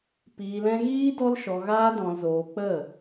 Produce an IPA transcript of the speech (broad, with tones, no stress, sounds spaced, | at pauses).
p iː˧ l ɛ̃˦ ɣ iː˦ d ɔ˦ l ʃ ɔ˧ ɣ aː˦ d ɔ̃˧ l z oː˧ k͡p ə˦˨